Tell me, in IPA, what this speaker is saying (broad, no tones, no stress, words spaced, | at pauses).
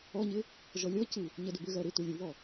ɔɲɪ | ʒɔlʲɔcɯ | ɲɜdʏbʏɣɜ ɾɪ tulʲuβɔ